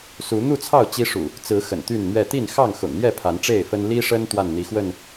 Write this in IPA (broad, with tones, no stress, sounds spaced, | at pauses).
s u˨˦ n̪ u˥˨ t͡sʰ ɑ˥˨ ʊ̯ t͡ɕ i˦ ʂ ṵ˨˩ | t͡s ɹ̩˨˦ x ə̰˨˩ n t̪ y˥˨ n n̪ ɥ ɛ˥˨ t̪ i˥˨ n x ɑ˥˨ ŋ x ʊ̰˨˩ ŋ n̪ j ɛ˥˨ pʰ a˨˦ n ʈ͡ʂ e˥˨ ɪ̯ f ə˦ n l i˦ ʂ ə˦ n t̪ w a˥˨ n n̪ i˨˦ x w ə˥˨ n